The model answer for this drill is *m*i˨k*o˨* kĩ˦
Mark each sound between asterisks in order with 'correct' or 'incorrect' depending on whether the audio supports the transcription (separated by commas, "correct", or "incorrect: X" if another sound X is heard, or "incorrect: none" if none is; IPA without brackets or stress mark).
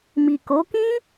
correct, incorrect: o˨˦